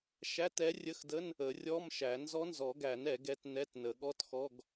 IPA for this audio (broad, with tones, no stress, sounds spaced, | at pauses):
ʃ æ˧˥˧ t ɛ˧˥ rʲ ə˧˥˧ x d ə˧˥˧ n | ə˨˩˦ rʲ ɔ˧˥˧ m ʃ æ˨˩˦ n z ɔ˧˥ n z ɔ˨˩˦ ɡ æ˨˩˦ n ɛ˨˩˦ ɡ ɛ˧˥ t n ɛ˧˥˧ t n ə˨˩˦ ɠ ɔ˧˥˧ t x ɔ˧˥˧ ɡ